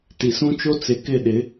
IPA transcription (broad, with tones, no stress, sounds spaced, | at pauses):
t i˨ s ũ˦ t͡ʃ o˦ t͡s ɪ˨ k ɪ˦˨ ɗ ɪ˨˦